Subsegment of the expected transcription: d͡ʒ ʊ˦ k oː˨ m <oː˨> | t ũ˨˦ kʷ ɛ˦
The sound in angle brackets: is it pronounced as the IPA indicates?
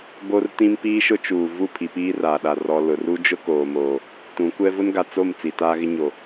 yes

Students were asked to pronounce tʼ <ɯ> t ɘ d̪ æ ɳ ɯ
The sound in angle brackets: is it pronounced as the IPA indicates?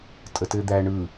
no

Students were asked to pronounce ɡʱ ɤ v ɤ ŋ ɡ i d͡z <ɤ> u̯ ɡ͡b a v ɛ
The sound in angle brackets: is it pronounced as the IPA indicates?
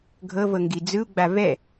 no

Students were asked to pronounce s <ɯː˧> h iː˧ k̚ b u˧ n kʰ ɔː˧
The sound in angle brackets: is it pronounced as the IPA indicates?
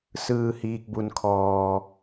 yes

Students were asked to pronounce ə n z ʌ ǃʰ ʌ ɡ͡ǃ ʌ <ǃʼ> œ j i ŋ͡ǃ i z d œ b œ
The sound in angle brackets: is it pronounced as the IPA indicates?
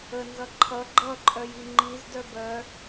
yes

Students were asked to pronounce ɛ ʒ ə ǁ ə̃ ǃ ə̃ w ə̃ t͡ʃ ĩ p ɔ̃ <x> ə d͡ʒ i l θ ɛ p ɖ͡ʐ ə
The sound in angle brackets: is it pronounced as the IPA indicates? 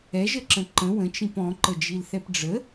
no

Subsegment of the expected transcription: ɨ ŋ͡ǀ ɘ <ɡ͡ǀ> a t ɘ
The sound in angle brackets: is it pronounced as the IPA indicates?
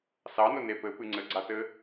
yes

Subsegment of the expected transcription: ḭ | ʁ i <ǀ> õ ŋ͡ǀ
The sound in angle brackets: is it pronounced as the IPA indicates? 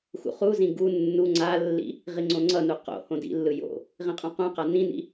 no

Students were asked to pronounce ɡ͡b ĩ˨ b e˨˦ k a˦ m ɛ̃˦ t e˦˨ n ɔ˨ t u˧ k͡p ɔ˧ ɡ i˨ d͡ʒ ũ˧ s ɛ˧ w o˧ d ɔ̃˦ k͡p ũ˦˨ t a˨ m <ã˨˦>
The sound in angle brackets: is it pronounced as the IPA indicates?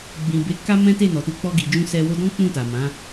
yes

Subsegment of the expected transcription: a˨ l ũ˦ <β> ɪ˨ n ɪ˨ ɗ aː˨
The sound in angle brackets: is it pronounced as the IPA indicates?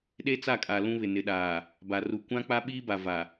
yes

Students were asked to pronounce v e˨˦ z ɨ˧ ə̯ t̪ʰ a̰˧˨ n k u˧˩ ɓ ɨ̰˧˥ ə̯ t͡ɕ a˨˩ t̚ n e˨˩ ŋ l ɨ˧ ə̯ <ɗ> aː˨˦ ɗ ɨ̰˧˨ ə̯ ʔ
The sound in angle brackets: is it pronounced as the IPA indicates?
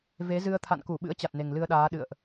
yes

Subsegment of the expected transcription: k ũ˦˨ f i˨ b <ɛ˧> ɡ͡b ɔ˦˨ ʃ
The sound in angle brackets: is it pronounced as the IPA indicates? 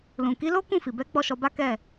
no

